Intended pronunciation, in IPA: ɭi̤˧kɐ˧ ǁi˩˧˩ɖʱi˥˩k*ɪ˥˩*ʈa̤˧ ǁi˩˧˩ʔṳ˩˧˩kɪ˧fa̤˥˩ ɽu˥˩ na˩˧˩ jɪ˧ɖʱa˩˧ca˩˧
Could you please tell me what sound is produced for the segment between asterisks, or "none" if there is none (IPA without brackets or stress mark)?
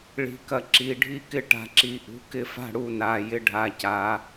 ɪ˥˩